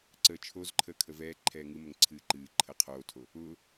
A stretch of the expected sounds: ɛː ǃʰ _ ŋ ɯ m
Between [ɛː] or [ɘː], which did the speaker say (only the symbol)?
ɛː